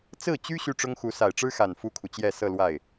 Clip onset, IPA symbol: t͡s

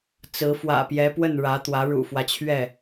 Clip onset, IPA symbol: t͡s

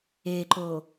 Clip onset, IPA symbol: e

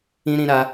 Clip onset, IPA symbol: ĩ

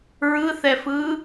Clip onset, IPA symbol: ɹ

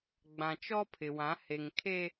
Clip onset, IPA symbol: ɡ͡b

